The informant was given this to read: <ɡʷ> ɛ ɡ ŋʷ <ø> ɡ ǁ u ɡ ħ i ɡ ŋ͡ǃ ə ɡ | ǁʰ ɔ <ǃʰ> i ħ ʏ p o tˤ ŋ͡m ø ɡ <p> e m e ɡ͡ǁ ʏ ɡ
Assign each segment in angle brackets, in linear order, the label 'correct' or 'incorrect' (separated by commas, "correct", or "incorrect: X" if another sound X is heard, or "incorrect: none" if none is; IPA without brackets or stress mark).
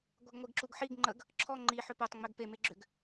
correct, incorrect: e, incorrect: ŋ͡ǃ, correct